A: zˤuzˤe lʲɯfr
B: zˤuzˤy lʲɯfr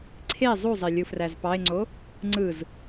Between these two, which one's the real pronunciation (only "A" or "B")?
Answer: A